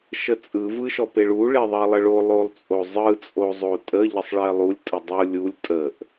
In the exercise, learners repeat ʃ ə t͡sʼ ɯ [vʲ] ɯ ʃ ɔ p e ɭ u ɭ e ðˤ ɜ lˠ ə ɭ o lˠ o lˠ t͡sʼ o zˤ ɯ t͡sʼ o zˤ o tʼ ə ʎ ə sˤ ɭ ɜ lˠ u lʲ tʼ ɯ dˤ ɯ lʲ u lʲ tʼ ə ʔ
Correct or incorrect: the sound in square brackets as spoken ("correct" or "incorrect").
incorrect